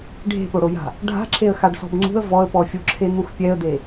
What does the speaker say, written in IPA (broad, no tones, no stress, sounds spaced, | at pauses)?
ɖʱ e̤ p o ɽ o j a̤ | ɖʱ a̤ ǁʰ e ə̯ x a ɖ s ɔ̤ b ŋ͡ǀ ṳ ə̯ v ɔ ə̯ p ɔ fʲ o ǁʰ e n̪ u x pʲ ɛ ə̯ d̪ e